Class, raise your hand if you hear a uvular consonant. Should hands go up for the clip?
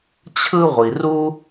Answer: yes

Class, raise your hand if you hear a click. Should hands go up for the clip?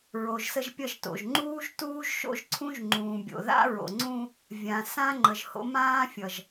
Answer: yes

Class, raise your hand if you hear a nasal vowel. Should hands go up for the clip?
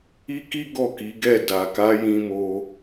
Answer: yes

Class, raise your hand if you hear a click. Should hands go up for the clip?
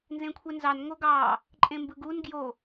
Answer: yes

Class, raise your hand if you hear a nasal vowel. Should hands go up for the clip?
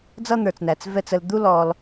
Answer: no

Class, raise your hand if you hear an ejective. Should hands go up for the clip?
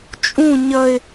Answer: yes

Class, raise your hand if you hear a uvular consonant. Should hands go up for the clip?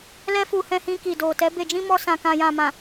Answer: no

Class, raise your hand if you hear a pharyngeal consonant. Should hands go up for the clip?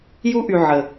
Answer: yes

